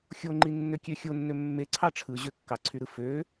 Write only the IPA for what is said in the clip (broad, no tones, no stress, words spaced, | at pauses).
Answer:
xʲoŋ͡ǃi nːøkʲøxʲonːø mːe ǀʰɑʈ͡ʂʰɯ ʑøkːɑǀʰyɾɯ fø